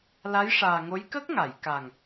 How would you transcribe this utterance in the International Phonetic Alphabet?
la˧˥jʂaː˨˩ŋo˧˥j kə˦˥k̚ŋa˨˩˨jka˨˩ŋ

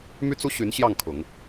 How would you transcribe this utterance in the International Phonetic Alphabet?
my˥t͡su˥ɕy˧˥nɕjɑ˥˩ŋ kʰʊ˨˩˦ŋ

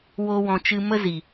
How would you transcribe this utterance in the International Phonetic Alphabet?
wo˧wɔ̃˨ t͡ʃɨ˧mə˦ zi˨

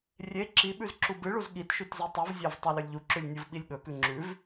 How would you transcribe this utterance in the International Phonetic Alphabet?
rʲe ǁiɓʉz ǁubɨɭuz ɠitʃʉt zitˤuvzʲav tˤalɵlʲʎuǁʉlʲ nʲuvɓilʲɠɵkʉ ŋ͡ǁʉv

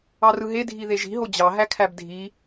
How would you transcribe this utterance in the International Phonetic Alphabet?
ɑrɯɦe dʱiðeʒi̤ɦo d͡ʑɑ ɦækʰæbdʱi

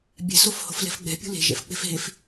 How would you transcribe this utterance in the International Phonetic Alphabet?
bʲɛ̤sofho̤flɛ̤f ɡ͡bɛ̤pʲṳ le̤ʒɛ̰fk͡pe̤f ɦef

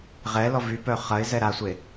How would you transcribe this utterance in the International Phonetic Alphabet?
ʁɛlɔ vypœ χɐɪ̯zɛ ɾasʷe

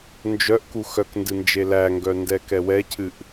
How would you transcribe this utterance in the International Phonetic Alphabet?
nd͡ʒœʔ kuxœkndɨ nd͡ʒelæŋɡœ ndɛkɛwɛcʰɨʔ

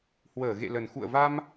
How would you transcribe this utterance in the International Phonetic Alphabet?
hwəː˧˩ɣḛ˧˨lə˨˩n xṵ˧˨ə̯va˧m

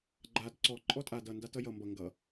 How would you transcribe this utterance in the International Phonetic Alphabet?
ɡ͡ǃad ǀɔ ǃʼɔtʼa dʌ ndatʌjʌ mbʌ ŋɡʌ

